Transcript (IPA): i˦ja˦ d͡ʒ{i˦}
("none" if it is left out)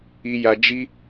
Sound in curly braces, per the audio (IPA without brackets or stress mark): i˦